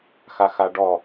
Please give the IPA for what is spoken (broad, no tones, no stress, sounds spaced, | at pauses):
x a x a ɖ ɔ